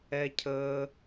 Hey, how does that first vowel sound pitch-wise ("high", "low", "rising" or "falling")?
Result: high